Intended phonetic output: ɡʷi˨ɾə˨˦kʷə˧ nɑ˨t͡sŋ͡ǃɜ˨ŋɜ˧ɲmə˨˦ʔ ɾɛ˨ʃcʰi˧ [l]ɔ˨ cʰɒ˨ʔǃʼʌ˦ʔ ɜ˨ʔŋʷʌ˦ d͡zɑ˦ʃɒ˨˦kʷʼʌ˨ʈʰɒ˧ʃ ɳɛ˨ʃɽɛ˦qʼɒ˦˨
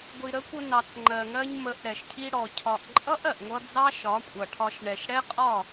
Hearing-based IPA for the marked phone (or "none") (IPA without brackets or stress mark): ɽ